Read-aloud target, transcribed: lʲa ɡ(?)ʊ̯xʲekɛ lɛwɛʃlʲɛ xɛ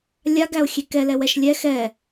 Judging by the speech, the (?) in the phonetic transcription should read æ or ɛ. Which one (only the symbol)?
æ